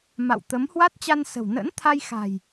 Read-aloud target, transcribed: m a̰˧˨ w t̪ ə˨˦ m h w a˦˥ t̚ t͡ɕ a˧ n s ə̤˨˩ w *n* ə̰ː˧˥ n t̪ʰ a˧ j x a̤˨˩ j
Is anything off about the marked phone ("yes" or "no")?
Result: no